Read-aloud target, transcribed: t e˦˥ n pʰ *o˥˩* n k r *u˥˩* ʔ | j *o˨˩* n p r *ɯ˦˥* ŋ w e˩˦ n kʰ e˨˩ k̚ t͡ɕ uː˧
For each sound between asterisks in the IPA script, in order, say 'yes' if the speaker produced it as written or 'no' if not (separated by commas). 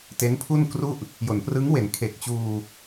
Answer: no, yes, no, yes